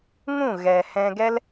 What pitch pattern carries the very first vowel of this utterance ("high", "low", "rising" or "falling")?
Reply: falling